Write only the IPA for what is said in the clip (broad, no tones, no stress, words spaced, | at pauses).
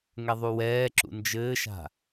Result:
ŋɛðˤuwɛːǁṵ nd͡ʒɘːʃa̤